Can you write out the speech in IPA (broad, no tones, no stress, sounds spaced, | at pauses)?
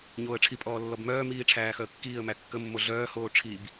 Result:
ɲ oː ə̯ ʈ͡ʂʰ i pʼ ɔː lː ɔ b m œː m iː ʈ͡ʂʰ æː x œ ə̯ kː iː ə̯ m æ kː ə mː o ɮ œː h oː ʈ͡ʂʰ i b